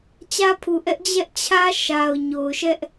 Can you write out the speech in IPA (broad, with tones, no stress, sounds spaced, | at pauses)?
t͡ɕ ä˦ pʰ u˨ ʔ ɛ˦ ʔ d͡ʑ ɛ˦ ʔ t͡ɕʰ ä˦ ʃ a˨ ʊ̯ ɲ o˨ ʊ̯ ʃ ɛ˦ ʔ